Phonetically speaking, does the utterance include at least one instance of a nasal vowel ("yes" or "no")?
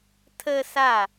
no